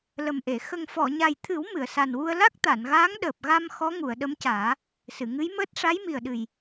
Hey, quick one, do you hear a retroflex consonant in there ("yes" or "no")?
yes